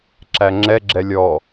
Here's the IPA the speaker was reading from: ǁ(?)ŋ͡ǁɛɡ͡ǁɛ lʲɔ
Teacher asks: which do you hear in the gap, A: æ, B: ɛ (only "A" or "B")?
A